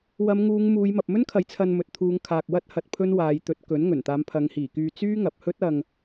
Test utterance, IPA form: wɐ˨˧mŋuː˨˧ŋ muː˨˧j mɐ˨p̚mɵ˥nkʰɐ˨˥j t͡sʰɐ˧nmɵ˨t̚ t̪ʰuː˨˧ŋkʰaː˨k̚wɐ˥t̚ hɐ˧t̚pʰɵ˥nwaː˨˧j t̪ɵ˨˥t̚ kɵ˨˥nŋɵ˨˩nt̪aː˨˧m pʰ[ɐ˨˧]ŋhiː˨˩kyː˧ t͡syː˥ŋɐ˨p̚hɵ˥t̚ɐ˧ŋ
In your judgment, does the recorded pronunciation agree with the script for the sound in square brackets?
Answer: yes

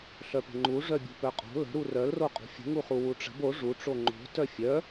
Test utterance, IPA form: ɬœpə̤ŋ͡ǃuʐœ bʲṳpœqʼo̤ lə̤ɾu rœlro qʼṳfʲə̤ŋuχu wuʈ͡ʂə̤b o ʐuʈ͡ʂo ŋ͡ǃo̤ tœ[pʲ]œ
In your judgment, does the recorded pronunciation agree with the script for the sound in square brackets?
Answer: no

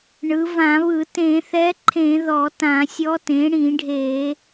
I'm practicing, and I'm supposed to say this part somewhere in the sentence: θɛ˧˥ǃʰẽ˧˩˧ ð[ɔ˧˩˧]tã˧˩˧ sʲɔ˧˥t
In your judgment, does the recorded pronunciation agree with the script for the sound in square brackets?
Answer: yes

